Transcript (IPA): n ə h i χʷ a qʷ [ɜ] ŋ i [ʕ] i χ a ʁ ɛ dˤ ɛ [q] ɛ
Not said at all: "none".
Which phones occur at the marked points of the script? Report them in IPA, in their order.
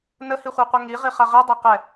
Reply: ɛ, ʁ, q

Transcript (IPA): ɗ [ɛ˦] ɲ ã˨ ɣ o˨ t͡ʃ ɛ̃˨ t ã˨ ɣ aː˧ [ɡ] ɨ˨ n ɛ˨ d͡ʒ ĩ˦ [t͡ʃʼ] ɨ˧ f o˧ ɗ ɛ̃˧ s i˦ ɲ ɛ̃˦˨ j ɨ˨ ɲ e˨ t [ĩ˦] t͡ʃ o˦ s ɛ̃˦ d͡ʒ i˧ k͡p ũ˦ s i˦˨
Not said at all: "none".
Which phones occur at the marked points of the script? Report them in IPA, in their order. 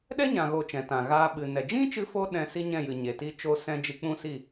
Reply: ɛ˦, ɓ, t͡ʃ, i˦

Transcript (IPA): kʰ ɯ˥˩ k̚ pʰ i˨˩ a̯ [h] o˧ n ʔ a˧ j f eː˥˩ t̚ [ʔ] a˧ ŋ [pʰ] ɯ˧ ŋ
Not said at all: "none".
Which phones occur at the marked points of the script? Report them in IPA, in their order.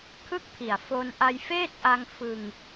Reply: f, ʔ, f

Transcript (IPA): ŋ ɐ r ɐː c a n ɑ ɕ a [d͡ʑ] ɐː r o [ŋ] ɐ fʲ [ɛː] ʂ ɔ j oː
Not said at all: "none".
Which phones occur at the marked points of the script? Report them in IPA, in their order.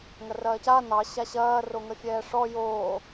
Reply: ɕ, ŋ, ɛː

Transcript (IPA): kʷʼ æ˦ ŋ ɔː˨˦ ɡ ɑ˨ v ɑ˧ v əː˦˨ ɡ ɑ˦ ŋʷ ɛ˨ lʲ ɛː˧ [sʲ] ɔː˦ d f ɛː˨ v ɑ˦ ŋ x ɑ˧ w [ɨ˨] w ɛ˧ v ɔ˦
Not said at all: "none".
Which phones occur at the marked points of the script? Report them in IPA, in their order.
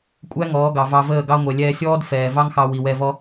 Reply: sʲ, i˨

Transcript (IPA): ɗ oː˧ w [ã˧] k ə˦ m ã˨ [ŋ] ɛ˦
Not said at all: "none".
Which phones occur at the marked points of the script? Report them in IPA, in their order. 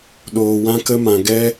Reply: ã˦, ɡ

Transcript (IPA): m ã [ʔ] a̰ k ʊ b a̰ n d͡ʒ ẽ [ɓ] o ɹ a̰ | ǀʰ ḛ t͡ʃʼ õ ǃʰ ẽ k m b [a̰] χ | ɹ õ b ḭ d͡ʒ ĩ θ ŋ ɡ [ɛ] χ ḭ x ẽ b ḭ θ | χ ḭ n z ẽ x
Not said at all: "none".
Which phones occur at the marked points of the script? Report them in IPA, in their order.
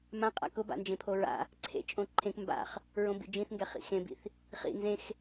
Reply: qʼ, pʰ, a̰, ɛ

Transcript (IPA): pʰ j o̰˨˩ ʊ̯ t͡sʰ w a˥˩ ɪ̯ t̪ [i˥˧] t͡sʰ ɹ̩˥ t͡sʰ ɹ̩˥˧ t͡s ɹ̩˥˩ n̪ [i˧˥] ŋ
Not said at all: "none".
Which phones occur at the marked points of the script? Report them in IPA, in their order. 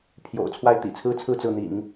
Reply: ḭ˨˩, ḭ˨˩˦

